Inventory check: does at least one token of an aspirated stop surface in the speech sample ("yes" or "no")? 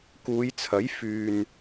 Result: yes